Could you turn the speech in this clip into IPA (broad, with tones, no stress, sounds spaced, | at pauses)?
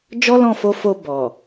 d͡ʒ ɔ˦ l ɔ̃˦˨ f o˧ f o˧ b ɔ˨